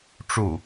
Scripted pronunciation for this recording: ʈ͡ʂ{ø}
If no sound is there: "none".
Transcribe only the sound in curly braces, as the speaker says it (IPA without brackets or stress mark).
u